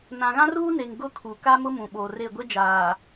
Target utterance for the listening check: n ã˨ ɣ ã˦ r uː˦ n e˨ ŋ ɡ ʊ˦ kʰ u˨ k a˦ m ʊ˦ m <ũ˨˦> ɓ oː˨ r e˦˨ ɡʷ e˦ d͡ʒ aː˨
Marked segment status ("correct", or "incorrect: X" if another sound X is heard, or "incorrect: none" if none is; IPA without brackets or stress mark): incorrect: ũ˨